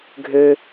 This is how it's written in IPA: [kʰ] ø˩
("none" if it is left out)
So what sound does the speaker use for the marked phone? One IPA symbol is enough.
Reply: ɡʱ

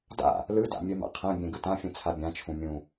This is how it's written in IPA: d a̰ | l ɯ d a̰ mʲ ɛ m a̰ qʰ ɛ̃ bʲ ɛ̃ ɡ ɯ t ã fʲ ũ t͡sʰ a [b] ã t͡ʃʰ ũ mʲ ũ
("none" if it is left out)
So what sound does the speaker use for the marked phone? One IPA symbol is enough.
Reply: bʲ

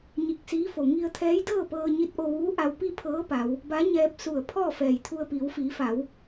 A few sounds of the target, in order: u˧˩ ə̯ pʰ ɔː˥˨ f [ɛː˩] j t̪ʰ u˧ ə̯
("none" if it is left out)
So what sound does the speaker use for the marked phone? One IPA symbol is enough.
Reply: ɛː˧˩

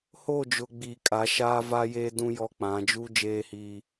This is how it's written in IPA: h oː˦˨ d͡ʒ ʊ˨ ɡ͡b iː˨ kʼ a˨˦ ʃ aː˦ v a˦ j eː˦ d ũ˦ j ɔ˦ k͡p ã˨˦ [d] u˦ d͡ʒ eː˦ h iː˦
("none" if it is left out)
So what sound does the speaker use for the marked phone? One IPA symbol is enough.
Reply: d͡ʒ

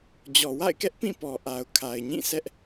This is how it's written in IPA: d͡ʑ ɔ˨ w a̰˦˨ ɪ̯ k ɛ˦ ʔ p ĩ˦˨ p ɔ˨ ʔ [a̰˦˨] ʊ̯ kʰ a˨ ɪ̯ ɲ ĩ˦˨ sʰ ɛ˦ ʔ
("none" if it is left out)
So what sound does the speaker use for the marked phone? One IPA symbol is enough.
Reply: a˨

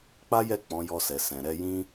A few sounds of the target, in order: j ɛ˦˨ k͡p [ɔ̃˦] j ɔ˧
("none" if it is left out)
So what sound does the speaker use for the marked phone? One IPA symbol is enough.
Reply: ɔ̃˨˦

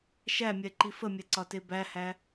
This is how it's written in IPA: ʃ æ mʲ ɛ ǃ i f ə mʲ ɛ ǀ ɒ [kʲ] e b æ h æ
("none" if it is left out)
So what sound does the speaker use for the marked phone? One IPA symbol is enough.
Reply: t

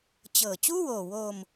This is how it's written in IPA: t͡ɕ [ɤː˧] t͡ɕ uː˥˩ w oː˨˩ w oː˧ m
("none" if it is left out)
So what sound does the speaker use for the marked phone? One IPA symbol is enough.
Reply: ɤː˨˩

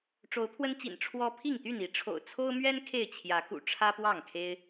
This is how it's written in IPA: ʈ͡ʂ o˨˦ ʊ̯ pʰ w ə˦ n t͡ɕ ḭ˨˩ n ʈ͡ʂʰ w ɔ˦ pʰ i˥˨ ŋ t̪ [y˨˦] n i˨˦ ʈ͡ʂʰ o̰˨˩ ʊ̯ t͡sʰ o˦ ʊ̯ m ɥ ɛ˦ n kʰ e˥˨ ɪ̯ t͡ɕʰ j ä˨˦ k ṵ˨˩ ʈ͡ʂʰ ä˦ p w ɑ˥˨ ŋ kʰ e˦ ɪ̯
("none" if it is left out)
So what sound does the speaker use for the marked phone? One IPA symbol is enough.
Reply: y˥˨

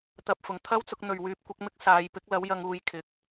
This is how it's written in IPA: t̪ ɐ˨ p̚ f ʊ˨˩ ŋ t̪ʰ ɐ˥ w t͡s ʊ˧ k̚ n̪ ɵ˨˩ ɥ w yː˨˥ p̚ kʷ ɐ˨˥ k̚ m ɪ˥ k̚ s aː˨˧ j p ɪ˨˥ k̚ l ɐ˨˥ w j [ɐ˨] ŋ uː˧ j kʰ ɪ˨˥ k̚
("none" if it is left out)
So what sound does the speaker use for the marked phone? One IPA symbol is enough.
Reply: ɐ˧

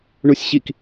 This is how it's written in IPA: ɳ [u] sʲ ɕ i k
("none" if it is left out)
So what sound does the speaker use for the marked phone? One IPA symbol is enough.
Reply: u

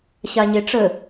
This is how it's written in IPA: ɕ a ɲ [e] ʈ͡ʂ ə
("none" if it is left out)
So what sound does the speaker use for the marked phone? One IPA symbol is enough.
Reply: e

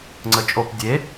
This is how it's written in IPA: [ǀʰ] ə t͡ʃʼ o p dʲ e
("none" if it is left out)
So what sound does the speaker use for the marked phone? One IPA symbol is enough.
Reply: ŋ͡ǀ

